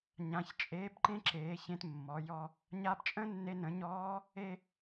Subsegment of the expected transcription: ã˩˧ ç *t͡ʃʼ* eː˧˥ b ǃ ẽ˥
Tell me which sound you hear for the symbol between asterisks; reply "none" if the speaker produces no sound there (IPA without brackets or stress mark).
t͡ʃʼ